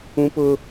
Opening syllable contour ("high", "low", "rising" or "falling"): high